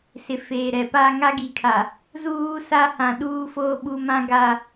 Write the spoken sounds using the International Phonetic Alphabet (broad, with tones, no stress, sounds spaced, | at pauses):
s ɪ˨ f eː˨ ɾ ɛ˨ p aː˦ ŋ a˦ ɡ i˨ kʰ a˨ | z uː˦ s a˦ h ã˨ ɗ uː˦ f oː˦ ɓ u˦ m ã˦ ɡ a˦